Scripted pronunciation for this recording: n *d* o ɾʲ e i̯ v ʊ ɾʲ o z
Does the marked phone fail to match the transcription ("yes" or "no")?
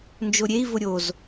yes